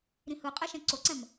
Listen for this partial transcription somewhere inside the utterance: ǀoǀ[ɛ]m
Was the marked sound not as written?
yes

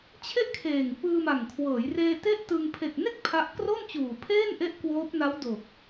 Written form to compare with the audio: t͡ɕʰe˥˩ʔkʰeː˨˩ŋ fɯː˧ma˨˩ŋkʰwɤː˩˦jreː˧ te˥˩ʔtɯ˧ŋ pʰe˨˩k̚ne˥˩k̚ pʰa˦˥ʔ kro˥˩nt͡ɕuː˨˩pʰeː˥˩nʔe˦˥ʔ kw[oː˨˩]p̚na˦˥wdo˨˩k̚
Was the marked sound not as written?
yes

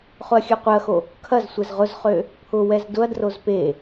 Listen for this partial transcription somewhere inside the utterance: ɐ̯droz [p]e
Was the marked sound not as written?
no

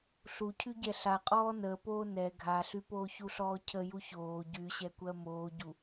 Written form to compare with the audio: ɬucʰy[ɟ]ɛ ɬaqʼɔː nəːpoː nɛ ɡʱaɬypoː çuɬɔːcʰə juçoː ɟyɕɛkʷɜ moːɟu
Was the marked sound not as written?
no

